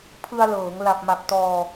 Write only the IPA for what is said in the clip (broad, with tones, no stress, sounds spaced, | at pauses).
pʰ ɯ˧ a̯ l ɤː˩˦ ŋ l a˨˩ p̚ m a˨˩ p̚ t ɔː˧